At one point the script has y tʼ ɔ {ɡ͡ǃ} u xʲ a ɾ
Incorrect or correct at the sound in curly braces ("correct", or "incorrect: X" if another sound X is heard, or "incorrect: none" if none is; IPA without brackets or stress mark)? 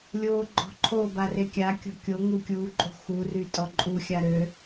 incorrect: ǃʼ